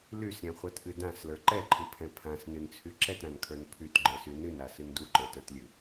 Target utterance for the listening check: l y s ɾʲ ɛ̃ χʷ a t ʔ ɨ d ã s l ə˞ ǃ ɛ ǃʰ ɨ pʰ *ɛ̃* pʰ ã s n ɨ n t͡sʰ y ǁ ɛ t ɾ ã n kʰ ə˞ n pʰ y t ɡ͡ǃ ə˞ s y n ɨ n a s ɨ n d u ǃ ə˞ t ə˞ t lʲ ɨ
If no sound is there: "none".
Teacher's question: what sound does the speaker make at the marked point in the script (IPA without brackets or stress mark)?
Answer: ɛ̃